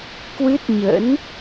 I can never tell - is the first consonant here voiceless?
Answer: yes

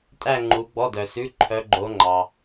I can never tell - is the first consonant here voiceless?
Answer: yes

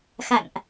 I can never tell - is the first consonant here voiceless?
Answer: yes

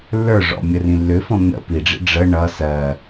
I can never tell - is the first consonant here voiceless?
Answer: no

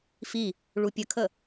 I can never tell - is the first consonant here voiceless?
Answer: yes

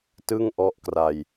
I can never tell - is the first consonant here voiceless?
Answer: yes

